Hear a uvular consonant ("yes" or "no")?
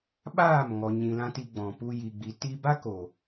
no